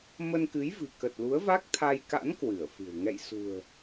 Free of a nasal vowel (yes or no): yes